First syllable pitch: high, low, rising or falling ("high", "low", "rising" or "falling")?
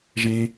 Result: low